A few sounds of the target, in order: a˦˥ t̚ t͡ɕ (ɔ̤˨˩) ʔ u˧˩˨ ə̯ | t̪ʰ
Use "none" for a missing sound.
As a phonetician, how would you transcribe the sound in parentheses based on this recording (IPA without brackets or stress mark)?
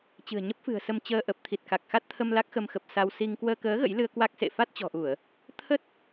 ɔ̤˨˩